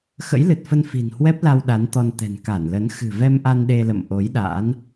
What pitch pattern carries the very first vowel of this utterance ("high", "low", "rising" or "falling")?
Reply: rising